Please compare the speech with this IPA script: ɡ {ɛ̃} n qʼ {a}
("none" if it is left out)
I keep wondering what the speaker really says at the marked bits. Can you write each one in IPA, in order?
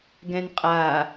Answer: ɛ̃, a

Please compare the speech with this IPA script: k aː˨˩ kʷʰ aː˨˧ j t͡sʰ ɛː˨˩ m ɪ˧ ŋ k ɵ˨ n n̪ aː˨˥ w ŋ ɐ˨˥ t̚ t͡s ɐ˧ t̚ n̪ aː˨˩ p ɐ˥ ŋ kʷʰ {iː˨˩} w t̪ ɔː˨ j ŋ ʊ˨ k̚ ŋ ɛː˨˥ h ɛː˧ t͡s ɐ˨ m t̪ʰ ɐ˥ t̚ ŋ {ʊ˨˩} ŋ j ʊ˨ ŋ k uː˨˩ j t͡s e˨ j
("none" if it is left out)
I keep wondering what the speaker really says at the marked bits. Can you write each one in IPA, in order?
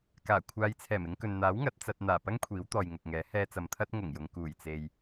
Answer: iː˨˥, ʊ˨˩

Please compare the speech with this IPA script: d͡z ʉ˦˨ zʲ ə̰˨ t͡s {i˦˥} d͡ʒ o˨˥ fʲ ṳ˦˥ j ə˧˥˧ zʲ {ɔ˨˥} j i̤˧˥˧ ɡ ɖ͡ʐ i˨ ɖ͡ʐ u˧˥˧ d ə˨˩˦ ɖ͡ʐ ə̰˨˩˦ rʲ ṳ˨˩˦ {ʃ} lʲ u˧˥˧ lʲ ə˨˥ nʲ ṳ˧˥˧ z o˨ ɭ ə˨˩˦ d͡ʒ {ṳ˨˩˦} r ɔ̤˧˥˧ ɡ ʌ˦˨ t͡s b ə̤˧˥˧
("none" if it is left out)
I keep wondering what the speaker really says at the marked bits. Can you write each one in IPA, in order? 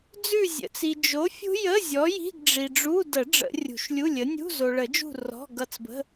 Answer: i˨, ɔ˨˥, ʃ, ṳ˦˨

